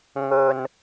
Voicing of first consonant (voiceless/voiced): voiced